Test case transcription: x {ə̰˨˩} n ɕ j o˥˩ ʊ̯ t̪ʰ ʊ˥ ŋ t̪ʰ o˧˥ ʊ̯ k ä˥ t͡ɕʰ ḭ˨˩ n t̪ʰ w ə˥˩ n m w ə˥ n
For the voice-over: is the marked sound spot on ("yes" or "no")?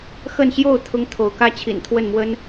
no